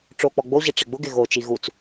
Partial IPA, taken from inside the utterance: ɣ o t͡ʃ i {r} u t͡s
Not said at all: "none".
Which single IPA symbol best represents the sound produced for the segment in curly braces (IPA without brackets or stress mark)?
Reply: ɣ